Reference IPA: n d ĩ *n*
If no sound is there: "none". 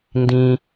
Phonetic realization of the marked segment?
none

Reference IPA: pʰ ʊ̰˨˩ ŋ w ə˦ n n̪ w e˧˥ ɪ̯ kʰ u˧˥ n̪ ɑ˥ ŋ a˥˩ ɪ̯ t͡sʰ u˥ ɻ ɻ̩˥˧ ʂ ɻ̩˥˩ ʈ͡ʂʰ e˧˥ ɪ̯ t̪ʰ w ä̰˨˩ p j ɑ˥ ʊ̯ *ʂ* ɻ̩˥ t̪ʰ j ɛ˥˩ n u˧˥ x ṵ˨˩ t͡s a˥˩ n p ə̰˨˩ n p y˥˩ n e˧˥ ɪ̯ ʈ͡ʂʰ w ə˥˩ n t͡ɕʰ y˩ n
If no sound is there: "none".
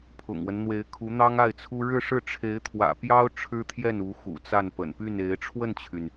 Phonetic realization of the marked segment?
ʈ͡ʂʰ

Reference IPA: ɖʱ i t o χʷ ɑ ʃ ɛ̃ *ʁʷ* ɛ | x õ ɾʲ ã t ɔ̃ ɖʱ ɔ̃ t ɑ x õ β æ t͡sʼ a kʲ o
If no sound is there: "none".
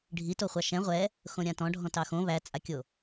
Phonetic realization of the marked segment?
ʁʷ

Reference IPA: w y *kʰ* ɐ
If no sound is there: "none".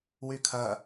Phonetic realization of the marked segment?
kʰ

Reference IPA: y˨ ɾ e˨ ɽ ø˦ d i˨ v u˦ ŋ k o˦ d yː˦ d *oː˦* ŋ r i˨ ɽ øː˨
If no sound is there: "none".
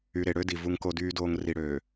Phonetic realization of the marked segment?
oː˦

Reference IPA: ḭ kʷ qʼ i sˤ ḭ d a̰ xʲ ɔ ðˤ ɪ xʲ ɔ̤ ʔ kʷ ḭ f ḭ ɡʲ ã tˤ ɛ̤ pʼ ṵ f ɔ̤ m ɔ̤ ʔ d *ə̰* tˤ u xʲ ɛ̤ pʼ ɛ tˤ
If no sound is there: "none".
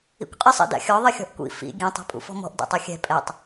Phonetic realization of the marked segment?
ɛ̰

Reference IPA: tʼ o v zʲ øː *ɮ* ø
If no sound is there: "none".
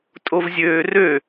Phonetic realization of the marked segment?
r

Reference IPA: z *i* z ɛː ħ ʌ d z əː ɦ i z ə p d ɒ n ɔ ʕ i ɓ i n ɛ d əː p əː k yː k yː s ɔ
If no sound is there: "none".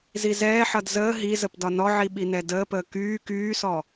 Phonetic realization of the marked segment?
i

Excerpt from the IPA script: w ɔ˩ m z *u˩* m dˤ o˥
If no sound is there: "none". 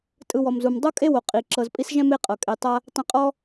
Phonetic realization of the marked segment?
u˩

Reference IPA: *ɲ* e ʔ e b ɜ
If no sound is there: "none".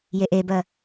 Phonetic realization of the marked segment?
j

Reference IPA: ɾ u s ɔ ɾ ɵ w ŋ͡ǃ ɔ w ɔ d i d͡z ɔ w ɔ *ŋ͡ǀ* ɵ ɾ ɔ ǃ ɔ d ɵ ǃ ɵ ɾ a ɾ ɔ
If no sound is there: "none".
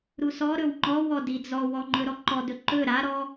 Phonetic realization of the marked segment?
ŋ͡ǃ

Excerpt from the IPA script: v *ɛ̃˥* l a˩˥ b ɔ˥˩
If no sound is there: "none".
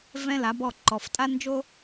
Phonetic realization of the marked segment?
ɛ̃˥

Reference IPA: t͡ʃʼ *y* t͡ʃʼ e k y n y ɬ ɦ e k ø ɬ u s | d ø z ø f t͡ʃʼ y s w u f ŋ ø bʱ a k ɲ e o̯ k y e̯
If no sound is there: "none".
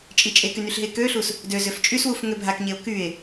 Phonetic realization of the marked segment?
i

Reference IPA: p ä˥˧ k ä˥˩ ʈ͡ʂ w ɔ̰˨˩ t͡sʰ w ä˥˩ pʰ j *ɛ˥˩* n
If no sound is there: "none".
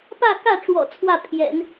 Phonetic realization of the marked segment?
ɛ̰˨˩˦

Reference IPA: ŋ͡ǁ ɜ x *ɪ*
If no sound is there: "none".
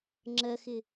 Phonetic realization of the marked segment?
ɪ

